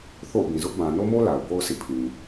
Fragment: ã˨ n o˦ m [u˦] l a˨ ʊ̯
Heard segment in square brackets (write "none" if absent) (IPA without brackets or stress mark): o˦